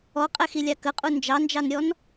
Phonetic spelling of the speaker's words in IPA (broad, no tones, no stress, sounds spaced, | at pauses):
ɔ qʼ ɛ x i lʲ ɑ k ə qʼ u n d͡ʒ ɑ n d͡ʒ ɑ n ɾʲ ɔ n